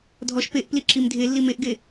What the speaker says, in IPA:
dʱ ɔ ʃ p e ʔ p l i ǁ i m dʱ e lː i m e ʔ ɡ e

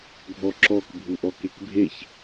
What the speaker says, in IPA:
ɡʱ ɔ ǁ ɔ k bʱ u ʔ ɔ k e k bʱ e ç

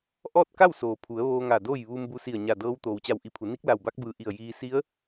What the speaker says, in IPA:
ʔ ɔː˥˨ t̚ k a˥˨ w s oː˩ pʰ u˩˧ ə̯ ʋ oː˧ ŋ a˧˩ d oː˥˨ j ʋ uː˧ m b u˧ s i˧˩ ə̯ ɲ a˧˩ d ɤː˧˥ w t̪ oː˩ w t͡ɕ a˧˩ w ʔ i˧˩ pʰ u˩˧ n i˧˥ k̚ l a˧˩ w b a˧˥ k̚ b ɯː˧˩ ʔ i˧˩ ə̯ j iː˧ s i˧˥ ə̯

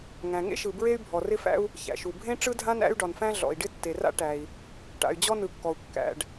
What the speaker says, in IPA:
ŋ æ̃˩ ŋ ḛ˥ ʃ ɯ˩ b ɹ e˥ y̯ bʱ ɔ˩ r ɪ˥ f æ̰˥ u̯ | ç æ̰˩ ʃ u˩ bʱ ẽ˥ ʈ͡ʂ ɯ˥ dʱ ã˥ n æ̰˥ y̯ ɖ ɒ˩ n f æ̃˥ ɮ ɔ̰˩ i̯ ɖ ɪ˥ tː e˩ r a̰˥ ʈ æ˩ i̯ | ʈ a̰˩ y̯ d͡ʑ ɔ˥ n ɯ˩ kː ɔ˩ u̯ kː æ̰˩ ɖ

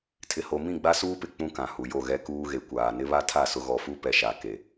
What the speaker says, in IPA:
tʰ ɪ˨ h o˨ m ĩ˦˨ ɡ͡b a˦ s uː˦ p ɪ˨ k͡p ũ˦ k ã˨ h u˨ j o˦˨ ɣ ɛ˦ k uː˦ ɣ e˨ kʷ aː˨ n ɪ˦ β a˦ tʰ a˦˨ s ʊ˦ ɣ ɔ˨ f u˦ p ɛ˨ ʃ a˨ k e˨

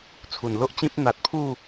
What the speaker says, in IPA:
t͡sʰ u˨˩ n l o˦ ʔ t͡ɕ ĩ˦ p̚ n̪ a˨ t̚ pʰ u˥˧

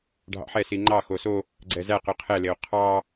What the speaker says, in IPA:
ɖʱ ɑ̰ ħ ɛ s i ŋ͡ǃ ɑ x o s o | ɡ͡ǀ ɛ z æ q ø qʰ ɛ l e o̯ qʰ ɑ

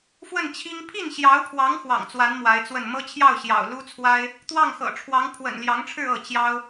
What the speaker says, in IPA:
f w ə˥˩ n t͡ɕʰ i˥ ŋ pʰ i˥˩ n ɕ j ɑ˧˥ ʊ̯ pʰ w ɑ˧˥ ŋ x w ɑ̰˨˩ ŋ t͡s w a˧˥ n m w a˧˥ ɪ̯ t͡s w ə˥˩ n m ɤ˥ t͡ɕʰ j ɑ˥˩ ʊ̯ ɕ j ɑ̰˨˩ ʊ̯ l u˥ t͡sʰ w a˥ ɪ̯ | t̪ w ɑ˥˩ ŋ x ɤ̰˨˩ ʈ͡ʂʰ w ɑ˧˥ ŋ pʰ w ə̰˨˩ n l j ɑ˧˥ ŋ ʈ͡ʂʰ ɻ̩˥˧ ɤ˥˩ t͡ɕ j ɑ˥ ʊ̯

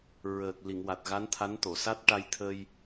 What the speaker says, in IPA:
ɹ əː˨˩ k̚ l i˨˩˨ ŋ w a˨˩ t̚ ɣ a˧˥ n t̪ʰ a˧˥ n t̪ o˨˩˨ s a˦˥ t̚ ʈ a˧ j t̪ʰ əː˧ j

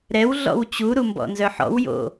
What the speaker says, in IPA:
ɾ ɛ w ɮ ɔ̰ w t͡ɕ u ɾ u m b ɔ̰ n z œ ħ ɔ̰ w j o̰

